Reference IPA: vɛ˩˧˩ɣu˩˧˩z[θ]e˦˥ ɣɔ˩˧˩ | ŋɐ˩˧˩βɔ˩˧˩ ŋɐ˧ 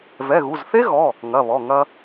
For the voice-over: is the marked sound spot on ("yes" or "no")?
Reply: yes